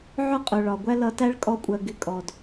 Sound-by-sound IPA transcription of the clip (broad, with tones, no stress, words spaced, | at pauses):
ʕʊ˦˨qʼʊ˨ ɭɒ˨ɡʷæ˦ lʌ˧tæ˦ɭ kʼɔ˦kʷʼɜ˧ ɡɪ˧kʼɔ˨d